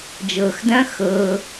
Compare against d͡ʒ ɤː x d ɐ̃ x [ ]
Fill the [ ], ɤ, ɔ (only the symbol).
ɤ